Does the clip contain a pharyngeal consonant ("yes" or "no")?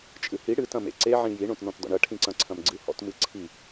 yes